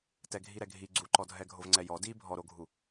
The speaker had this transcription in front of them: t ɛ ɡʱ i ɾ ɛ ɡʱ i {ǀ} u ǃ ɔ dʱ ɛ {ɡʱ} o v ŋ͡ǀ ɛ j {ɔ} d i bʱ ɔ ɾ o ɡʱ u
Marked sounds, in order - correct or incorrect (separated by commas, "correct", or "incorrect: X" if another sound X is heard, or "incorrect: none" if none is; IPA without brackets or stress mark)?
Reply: incorrect: ɡ͡ǀ, correct, correct